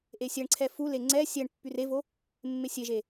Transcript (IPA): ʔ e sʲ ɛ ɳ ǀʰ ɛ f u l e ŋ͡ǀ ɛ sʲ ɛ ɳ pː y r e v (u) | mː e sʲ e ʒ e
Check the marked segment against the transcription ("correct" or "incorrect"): incorrect